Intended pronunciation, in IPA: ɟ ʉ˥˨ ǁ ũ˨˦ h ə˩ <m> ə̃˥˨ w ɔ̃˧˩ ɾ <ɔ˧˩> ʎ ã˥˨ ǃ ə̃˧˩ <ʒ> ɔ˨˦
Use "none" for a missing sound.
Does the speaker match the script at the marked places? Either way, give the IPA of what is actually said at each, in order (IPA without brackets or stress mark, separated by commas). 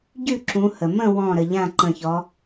m, ə˧˩, ç